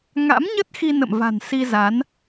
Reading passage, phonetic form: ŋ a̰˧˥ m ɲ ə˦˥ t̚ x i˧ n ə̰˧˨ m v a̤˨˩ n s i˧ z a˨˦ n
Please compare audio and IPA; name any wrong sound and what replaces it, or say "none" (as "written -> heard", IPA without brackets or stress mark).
none